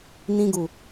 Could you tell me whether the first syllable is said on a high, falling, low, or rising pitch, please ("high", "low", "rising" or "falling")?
high